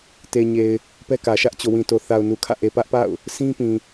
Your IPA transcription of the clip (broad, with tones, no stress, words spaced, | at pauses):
te˨ɲe˨ɪ̯ | pɛ˦kä˨ ʃä˦ʔt͡ɕo˨wĩ˨to˨ θa˨ʊ̯nu˨kʰä̰˦˨ʔe˨ pä˦ʔpa̰˦˨ʊ̯ | sĩ˦pĩ˨